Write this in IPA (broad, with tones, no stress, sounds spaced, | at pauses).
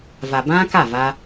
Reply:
v a˨ b ã˦ k a˦˨ v a˧